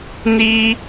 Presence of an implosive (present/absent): absent